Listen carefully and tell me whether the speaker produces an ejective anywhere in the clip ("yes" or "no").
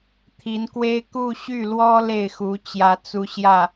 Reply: no